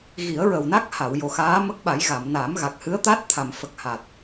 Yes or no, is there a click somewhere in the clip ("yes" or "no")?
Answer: no